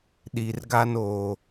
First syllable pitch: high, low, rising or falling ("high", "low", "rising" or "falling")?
low